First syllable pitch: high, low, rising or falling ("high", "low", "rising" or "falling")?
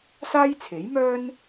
high